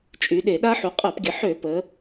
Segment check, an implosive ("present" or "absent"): present